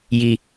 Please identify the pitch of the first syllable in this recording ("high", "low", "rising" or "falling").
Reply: low